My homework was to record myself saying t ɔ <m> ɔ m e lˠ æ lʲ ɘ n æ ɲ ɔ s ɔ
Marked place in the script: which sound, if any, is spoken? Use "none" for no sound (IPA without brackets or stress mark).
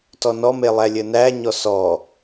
n